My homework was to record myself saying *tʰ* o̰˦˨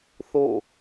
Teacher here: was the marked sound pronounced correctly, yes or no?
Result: no